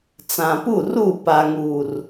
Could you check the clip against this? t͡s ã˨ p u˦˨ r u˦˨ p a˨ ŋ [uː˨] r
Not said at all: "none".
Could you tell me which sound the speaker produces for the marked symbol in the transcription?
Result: uː˨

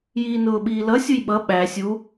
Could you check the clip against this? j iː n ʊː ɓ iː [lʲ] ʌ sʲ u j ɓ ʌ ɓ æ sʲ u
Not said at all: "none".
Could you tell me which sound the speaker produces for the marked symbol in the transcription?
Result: l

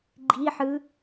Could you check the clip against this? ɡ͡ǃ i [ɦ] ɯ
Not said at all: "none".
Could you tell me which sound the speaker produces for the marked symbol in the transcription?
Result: ħ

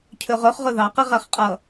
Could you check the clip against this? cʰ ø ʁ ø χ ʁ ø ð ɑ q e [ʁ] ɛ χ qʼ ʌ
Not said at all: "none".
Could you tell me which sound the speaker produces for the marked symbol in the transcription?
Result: ʁ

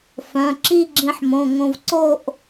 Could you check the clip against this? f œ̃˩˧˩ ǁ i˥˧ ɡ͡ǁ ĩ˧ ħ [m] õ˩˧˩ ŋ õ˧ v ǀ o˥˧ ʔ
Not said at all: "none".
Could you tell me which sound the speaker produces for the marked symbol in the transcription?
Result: m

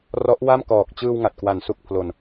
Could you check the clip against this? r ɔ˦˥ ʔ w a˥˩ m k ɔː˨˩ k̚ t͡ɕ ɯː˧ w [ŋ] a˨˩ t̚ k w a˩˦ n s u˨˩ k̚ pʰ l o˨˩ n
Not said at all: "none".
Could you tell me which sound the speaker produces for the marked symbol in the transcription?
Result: ŋ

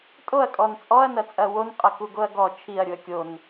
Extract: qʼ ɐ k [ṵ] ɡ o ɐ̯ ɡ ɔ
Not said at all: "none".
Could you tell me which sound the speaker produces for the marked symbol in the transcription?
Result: u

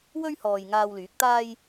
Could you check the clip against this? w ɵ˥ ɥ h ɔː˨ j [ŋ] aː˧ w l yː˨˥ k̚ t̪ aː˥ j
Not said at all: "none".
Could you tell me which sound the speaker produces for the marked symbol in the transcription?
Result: ŋ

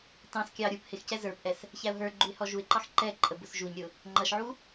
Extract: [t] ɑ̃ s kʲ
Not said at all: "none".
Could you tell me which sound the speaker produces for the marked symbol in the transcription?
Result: t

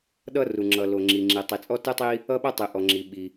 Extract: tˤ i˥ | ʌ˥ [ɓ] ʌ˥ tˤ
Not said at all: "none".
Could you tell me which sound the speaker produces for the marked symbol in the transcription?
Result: ɓ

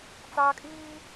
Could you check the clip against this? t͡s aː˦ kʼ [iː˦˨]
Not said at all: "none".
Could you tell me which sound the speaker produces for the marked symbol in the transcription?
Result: iː˦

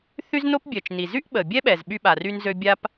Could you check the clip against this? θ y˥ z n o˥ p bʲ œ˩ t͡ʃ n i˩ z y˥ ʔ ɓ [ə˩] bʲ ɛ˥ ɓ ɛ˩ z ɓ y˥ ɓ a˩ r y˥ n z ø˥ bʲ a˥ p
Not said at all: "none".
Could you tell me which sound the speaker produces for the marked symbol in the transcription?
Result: ə˩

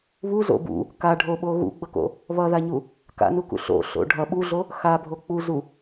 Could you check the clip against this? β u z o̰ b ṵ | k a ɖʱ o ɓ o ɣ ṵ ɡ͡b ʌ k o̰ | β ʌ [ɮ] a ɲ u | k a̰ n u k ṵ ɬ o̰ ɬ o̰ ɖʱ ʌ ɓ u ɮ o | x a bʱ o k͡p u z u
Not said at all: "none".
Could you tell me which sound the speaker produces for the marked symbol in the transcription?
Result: ð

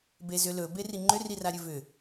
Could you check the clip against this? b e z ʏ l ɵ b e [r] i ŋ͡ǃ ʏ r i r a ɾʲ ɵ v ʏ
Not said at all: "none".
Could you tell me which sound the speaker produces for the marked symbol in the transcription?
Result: r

